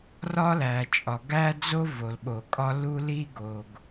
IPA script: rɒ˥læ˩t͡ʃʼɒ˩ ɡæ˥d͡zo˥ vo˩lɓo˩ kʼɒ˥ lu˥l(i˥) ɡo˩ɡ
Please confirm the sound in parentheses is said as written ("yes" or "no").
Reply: yes